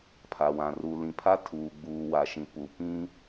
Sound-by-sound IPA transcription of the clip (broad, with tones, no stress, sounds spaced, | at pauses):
pʰ a˨ w ã˨ r u˨ l ĩ˨ pʰ a˦ tʰ uː˨ ɡ͡b uː˨ w a˨ ʃ ĩ˨ p u˨ p ĩ˦